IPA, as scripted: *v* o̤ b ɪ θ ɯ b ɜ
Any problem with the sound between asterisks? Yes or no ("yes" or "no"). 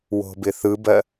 yes